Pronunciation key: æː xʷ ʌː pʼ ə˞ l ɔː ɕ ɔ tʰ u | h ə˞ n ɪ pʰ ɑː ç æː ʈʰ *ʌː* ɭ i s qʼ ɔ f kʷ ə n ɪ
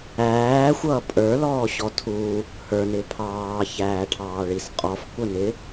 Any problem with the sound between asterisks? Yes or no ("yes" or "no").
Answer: yes